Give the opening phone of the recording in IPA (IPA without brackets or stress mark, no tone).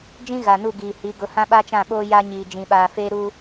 d͡ʒ